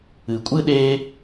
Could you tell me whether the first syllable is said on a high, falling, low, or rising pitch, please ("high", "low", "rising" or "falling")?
low